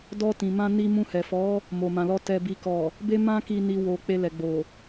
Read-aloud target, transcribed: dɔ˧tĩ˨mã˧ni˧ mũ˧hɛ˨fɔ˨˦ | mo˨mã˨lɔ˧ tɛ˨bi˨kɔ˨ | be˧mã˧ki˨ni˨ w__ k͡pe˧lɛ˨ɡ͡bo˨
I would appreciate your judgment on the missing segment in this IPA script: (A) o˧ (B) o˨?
B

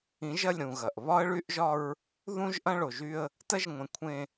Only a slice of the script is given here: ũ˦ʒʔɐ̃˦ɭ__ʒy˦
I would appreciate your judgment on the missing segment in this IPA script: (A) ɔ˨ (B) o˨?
B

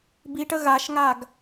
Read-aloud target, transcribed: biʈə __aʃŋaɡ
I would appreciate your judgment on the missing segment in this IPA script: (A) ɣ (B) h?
A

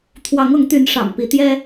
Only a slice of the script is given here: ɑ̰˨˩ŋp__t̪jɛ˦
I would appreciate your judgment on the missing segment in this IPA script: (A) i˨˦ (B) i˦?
A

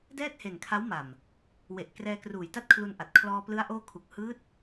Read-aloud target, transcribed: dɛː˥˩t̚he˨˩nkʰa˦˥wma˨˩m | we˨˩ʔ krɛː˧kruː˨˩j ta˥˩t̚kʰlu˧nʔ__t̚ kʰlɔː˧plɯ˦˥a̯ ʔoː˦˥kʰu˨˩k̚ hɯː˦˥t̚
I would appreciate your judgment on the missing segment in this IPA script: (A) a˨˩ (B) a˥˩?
A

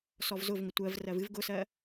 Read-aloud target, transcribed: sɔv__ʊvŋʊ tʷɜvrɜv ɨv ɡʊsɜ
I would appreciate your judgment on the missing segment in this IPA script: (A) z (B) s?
A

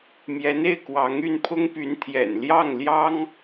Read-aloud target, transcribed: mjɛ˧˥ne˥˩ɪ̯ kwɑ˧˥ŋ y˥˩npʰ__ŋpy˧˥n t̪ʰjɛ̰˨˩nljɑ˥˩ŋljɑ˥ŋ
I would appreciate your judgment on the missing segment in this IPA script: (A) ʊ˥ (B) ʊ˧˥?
A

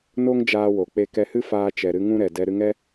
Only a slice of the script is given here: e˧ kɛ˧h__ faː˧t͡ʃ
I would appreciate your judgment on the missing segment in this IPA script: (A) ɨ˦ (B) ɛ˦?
A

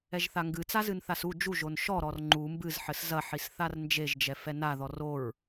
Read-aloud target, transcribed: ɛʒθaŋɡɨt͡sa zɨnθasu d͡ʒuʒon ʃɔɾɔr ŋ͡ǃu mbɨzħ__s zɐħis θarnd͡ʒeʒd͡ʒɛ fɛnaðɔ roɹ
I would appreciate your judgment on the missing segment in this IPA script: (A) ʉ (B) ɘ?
B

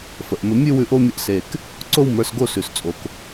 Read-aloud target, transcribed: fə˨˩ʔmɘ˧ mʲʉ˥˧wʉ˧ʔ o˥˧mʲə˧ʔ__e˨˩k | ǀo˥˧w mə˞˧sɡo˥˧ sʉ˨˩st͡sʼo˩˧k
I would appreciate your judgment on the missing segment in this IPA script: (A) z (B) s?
B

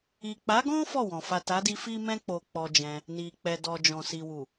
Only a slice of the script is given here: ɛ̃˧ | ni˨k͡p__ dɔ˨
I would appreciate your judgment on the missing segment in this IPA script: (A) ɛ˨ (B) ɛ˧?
A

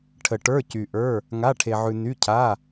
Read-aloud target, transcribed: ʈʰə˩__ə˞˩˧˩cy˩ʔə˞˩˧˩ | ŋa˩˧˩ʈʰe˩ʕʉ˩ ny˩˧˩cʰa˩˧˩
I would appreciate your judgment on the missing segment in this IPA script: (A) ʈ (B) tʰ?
A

